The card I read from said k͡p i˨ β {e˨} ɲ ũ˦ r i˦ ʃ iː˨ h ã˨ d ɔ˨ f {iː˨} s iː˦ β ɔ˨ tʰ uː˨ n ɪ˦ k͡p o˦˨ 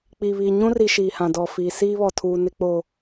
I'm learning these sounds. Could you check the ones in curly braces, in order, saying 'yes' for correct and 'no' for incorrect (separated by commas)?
no, no